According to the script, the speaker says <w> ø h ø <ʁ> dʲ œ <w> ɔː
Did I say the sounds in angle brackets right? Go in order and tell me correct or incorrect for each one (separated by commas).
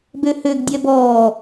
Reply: incorrect, incorrect, incorrect